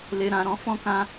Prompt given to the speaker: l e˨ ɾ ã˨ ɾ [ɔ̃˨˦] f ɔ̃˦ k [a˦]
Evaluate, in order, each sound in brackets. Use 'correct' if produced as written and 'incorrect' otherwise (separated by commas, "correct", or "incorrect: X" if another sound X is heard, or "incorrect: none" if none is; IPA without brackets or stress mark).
correct, incorrect: ã˦